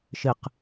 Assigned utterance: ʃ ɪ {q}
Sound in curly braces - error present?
no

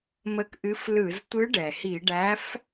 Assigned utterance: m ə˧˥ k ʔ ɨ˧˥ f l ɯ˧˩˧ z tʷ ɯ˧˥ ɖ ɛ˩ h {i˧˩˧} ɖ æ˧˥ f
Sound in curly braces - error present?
no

